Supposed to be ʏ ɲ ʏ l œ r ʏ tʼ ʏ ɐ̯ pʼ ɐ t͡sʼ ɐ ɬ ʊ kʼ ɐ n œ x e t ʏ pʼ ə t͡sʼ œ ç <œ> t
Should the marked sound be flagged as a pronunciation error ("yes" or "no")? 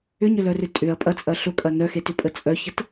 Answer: yes